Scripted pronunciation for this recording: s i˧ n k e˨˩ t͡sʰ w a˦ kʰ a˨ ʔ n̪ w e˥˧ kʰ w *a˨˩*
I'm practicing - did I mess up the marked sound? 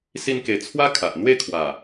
no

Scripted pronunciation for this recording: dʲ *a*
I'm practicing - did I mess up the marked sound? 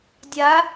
no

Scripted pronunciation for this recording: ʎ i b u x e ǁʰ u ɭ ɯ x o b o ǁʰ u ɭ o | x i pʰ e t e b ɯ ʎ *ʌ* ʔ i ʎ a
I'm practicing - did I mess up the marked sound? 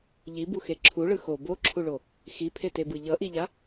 no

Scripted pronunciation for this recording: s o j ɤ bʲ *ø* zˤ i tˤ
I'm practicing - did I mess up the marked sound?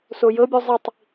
yes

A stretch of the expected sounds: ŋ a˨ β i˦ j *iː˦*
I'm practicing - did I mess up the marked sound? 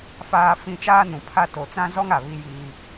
no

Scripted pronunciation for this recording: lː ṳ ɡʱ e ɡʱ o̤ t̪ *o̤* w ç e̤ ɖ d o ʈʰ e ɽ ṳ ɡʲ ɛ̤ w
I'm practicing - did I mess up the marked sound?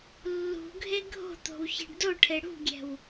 no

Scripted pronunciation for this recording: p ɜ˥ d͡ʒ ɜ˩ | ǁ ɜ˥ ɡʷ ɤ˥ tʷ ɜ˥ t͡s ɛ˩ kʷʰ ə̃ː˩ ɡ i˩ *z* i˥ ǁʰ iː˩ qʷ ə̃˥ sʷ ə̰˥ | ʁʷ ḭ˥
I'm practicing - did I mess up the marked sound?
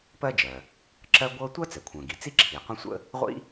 yes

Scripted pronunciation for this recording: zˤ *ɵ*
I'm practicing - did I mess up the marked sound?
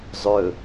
no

